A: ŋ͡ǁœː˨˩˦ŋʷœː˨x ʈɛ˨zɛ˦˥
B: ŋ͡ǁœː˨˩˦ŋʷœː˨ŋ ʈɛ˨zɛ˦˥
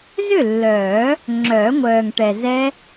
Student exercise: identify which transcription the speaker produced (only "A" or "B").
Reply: B